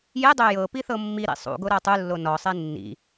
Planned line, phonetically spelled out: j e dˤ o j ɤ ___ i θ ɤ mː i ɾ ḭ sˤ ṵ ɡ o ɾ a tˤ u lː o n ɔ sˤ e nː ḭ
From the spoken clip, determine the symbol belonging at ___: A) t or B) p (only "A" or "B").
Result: B